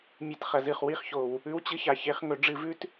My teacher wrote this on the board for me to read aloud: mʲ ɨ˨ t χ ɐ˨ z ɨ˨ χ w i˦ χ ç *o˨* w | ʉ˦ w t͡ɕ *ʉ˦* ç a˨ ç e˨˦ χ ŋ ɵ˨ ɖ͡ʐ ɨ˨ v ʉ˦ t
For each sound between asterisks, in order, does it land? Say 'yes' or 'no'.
yes, no

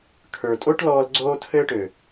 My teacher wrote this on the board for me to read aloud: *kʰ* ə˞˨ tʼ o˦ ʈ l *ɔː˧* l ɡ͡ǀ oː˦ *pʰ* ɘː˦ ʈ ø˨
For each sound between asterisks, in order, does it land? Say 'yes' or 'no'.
yes, yes, no

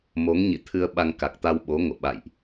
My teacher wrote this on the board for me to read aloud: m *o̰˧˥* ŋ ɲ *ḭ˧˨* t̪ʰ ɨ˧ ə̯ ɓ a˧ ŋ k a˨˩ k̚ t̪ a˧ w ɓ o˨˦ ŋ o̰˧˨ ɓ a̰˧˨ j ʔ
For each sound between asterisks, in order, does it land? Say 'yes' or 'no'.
no, yes

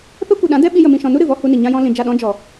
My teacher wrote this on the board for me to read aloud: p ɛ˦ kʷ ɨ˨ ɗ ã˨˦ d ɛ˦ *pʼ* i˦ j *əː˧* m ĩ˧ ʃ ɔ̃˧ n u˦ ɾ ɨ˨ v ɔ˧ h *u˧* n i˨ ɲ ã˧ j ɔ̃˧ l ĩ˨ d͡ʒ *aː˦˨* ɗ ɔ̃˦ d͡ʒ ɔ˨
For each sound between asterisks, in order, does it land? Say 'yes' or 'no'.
no, no, yes, no

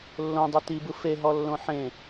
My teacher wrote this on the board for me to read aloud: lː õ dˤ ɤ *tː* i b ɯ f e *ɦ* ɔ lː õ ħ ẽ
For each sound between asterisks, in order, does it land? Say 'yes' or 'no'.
no, yes

